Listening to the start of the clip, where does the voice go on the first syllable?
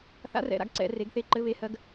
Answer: rising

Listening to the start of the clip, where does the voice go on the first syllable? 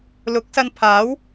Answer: rising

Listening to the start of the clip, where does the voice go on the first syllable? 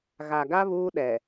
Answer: low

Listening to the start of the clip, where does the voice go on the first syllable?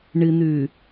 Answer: low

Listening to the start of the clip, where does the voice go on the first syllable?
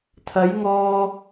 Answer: rising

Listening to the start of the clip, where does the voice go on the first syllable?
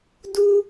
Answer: high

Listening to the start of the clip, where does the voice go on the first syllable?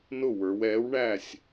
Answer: falling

